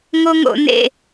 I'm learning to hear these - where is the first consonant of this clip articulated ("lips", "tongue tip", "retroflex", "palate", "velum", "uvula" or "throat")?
velum